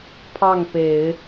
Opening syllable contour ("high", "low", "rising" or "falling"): falling